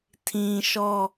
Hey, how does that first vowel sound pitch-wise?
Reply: low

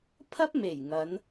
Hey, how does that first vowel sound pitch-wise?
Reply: high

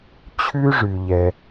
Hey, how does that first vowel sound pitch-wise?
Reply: high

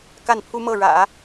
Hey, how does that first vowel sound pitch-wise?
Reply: falling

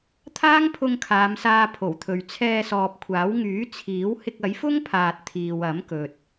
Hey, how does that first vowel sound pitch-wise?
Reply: high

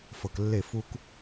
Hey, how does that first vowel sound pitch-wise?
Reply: low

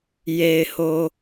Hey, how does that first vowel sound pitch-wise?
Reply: low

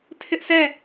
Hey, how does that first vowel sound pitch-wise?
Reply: high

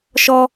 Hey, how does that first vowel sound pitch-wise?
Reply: high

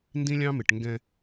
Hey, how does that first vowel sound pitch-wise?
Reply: high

